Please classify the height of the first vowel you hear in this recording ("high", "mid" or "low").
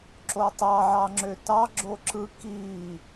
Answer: mid